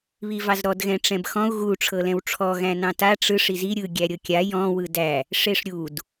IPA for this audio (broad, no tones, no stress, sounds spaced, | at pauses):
β i v ɑ z ɾ ɔ d ɣ ɛ̃ ʈ͡ʂ ɛ̃ b x ɔ̃ u̯ ɣ u ʈ͡ʂʰ ɤ l ɛ̃ w ʈ͡ʂʰ ɔ ɣ æ̃ n ɑ̃ t a ʈ͡ʂ ɯ ʂ i z i ɾʲ ɯ ɡʲ æ ɾʲ ɤ kʲ a j ɔ̃ w ɯ d æ | ʂ e ʂ ɾʲ u d